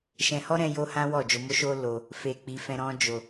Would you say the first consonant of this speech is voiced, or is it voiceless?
voiceless